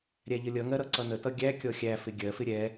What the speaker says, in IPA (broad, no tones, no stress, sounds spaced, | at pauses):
ɾʲ æ ʎ ə lʲ ʌ ŋ ɜ ɾ ʌ ǀ ʌ n ə t ʌ ɡʲ æ kʲ ɔ xʲ æ f ɪ ɡʲ ɜ f ɪ ɾʲ ɛ